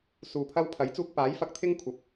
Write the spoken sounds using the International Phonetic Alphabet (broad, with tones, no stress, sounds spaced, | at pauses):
s uː˧ pʰ ɐ˥ w pʰ ɐ˨˥ j t͡s uː˧ k̚ p aː˨˥ j f ɐ˨˥ k̚ t̪ʰ ɪ˥ ŋ kʷʰ ɐ˨˥ p̚